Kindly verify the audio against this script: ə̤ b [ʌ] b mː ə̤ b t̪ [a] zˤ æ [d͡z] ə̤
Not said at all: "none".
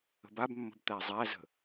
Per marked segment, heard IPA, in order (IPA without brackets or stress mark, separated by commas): a, æ, z